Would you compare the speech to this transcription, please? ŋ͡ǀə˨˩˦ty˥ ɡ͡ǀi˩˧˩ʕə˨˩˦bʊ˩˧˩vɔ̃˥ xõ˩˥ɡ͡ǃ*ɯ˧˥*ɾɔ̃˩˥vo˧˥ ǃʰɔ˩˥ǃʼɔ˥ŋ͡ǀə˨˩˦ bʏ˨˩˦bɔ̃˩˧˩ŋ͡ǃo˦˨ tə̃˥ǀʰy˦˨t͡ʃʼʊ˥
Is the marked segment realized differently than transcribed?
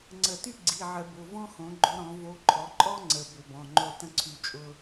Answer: yes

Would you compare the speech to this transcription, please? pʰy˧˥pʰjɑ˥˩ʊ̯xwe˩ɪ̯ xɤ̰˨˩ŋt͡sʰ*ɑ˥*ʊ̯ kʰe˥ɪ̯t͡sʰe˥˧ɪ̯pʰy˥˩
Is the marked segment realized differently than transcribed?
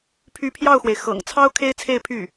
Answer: no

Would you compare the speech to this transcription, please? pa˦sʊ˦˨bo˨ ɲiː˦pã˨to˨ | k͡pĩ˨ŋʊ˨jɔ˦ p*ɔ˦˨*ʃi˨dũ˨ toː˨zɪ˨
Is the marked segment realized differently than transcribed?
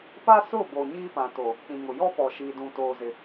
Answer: yes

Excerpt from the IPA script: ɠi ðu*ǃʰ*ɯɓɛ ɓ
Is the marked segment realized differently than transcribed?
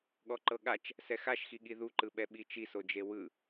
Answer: yes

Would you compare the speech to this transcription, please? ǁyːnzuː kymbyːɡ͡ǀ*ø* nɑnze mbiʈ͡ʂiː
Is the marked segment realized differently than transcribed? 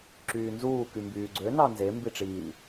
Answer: no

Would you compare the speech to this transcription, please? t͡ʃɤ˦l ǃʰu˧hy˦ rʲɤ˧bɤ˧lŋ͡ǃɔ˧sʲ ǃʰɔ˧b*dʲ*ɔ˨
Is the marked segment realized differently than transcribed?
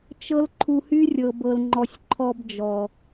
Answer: yes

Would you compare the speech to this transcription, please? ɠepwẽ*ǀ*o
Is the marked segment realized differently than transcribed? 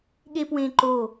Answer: yes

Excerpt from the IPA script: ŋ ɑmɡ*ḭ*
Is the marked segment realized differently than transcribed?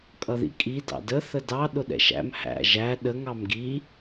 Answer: yes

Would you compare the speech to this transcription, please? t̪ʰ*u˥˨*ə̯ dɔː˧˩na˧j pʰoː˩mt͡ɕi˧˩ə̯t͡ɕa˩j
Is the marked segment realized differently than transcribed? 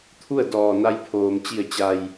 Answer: no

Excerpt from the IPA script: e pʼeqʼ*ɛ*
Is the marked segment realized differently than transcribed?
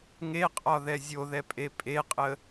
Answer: yes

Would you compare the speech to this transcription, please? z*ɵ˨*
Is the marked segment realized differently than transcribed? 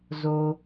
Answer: yes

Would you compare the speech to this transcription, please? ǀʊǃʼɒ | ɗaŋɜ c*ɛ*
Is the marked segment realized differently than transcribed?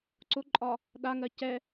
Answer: no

